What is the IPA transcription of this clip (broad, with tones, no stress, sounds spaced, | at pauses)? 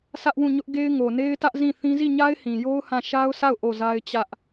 s ä˦ ʔ w ũ˦˨ ɲ ʊ˦ ʔ ɡ e˦ ɪ̯ ŋ o˨ n e˦ ɪ̯ t ä˦ ʔ z ĩ˦˨ θ ĩ˦ z i˦˨ ɲ a˦ ɪ̯ h ĩ˨ j o˦ ʊ̯ h ã˦˨ ʃ a˦ ʊ̯ sʰ a˦˨ ʊ̯ ʔ o˦˨ z a˦ ɪ̯ t͡ɕ ä˦ ʔ